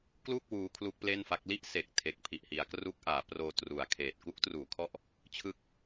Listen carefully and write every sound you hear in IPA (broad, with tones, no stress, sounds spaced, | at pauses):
k l u˥˩ k̚ w uː˦˥ kʰ l u˦˥ k̚ p l e˥˩ n f a˦˥ k̚ l i˥˩ ʔ s e˨˩ k̚ tʰ e˨˩ k̚ pʰ i˨˩ ʔ h i˩˦ a̯ k r u˦˥ k̚ ʔ aː˩˦ p r oː˧ t r u˨˩ a̯ kʰ eː˨˩ t̚ k u˦˥ k̚ t r uː˩˦ kʰ ɔ˦˥ ʔ | t͡ɕʰ ɯ˥˩ k̚